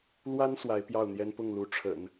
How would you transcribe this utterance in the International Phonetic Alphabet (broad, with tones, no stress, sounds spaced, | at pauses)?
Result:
l w a˥ n s w a˧˥ ɪ̯ p j ɑ˥˩ ʊ̯ n̪ j ɛ˥ n p ʊ˥˩ ŋ l u˧˥ ʈ͡ʂʰ ə̰˨˩˦ n